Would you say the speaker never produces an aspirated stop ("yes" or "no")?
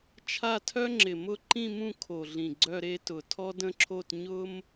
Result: no